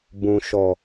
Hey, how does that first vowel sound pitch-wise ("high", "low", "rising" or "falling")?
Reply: low